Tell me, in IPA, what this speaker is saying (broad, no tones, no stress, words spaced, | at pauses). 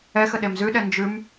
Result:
ɛxə ɗemzʉɗɛ nd͡ʒʉm